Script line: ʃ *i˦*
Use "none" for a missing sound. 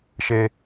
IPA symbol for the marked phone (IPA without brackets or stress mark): e˦